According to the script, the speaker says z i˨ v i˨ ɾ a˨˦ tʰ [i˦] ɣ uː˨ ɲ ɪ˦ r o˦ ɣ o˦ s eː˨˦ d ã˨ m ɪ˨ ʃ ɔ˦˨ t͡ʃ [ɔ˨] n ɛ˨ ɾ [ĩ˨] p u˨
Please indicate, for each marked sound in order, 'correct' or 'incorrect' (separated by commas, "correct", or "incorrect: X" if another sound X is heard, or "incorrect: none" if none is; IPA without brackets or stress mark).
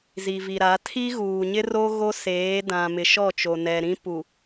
correct, incorrect: o˨, incorrect: ĩ˦